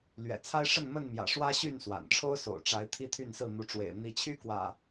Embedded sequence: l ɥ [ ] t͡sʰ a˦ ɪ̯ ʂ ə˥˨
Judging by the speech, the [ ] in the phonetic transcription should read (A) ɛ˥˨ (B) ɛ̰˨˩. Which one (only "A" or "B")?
B